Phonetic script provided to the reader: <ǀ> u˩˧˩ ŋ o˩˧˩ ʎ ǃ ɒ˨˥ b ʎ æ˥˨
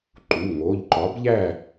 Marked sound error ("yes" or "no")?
yes